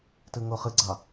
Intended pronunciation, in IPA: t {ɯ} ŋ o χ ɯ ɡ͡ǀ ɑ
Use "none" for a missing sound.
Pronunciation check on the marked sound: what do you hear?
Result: ɯ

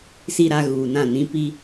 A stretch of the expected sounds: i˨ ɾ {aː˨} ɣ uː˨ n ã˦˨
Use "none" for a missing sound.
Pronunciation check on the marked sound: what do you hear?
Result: a˨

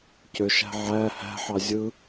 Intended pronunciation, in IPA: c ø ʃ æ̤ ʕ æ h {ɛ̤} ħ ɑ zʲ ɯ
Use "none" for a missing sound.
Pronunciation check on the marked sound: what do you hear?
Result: æ̤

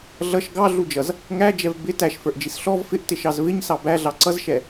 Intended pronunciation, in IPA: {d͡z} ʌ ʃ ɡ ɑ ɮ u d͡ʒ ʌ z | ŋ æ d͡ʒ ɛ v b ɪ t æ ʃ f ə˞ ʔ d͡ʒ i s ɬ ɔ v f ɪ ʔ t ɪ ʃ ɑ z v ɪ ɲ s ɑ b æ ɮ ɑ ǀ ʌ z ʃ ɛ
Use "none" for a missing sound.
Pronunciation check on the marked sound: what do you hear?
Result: ɮ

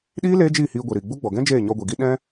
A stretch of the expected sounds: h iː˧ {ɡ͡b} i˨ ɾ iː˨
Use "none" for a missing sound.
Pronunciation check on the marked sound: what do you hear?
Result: ɡʷ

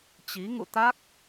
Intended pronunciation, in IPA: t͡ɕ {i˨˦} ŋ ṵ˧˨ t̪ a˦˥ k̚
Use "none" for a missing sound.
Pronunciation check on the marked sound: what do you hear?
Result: i˨˦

